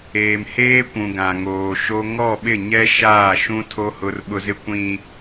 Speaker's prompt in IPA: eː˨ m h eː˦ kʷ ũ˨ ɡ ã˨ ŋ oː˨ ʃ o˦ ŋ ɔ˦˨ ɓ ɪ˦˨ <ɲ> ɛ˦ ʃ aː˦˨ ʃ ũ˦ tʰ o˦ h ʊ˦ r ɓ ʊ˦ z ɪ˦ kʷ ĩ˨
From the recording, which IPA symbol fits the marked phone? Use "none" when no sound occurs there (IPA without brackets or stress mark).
ɲ